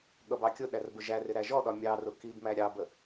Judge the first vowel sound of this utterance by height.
mid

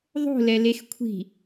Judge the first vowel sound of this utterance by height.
mid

